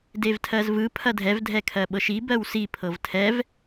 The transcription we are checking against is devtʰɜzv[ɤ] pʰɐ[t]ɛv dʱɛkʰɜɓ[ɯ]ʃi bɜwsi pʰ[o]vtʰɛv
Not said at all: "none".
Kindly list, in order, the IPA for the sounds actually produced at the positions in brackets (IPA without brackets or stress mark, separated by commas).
ɯ, dʱ, ɤ, ɤ